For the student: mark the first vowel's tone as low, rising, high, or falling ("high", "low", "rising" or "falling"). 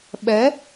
rising